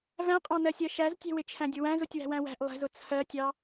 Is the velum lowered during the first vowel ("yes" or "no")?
yes